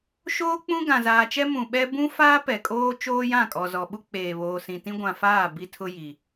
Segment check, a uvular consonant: absent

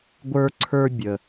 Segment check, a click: present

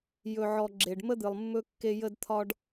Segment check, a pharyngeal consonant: present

